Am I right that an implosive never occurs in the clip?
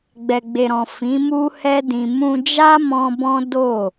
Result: yes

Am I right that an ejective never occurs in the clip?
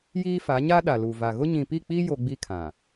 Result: yes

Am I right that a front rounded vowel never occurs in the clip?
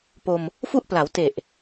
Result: yes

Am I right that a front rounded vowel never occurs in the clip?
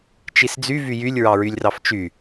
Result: no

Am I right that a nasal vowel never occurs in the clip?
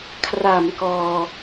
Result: yes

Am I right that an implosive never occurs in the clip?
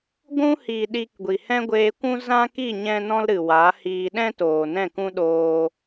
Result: no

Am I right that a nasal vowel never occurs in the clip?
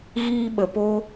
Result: yes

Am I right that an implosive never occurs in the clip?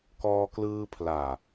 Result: yes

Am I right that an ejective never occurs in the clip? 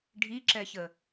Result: yes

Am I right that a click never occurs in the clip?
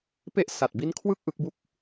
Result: yes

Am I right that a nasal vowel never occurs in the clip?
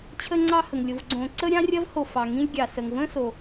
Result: no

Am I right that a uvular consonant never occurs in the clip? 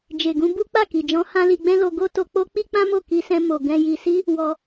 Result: yes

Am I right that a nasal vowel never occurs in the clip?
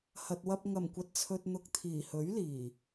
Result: yes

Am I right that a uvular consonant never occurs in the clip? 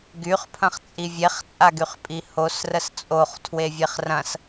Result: no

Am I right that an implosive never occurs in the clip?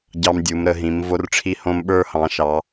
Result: no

